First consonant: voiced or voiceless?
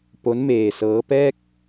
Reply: voiceless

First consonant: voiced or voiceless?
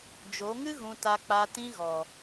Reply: voiced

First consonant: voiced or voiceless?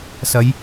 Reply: voiceless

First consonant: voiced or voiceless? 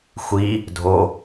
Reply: voiceless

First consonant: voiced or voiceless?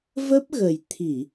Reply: voiced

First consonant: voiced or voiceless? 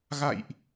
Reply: voiced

